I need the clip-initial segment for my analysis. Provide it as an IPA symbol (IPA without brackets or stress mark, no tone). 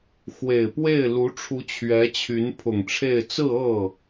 x